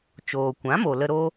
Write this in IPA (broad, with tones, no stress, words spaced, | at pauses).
t͡ʃoː˨kʷã˨˦mo˨lə˧ ɾo˦